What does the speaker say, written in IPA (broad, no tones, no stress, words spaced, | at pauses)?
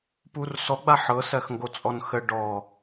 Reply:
pursɔɡ͡ba ħɤsɜxŋɡot͡sʼɔn xə ɖɔ